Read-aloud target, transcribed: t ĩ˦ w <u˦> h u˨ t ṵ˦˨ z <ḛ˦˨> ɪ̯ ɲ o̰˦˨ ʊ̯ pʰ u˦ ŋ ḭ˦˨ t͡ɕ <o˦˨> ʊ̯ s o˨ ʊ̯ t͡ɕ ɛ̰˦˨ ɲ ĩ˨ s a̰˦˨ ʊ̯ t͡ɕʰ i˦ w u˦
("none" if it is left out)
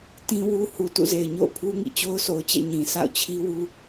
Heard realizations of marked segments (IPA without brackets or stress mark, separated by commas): u˦, e˨, o˦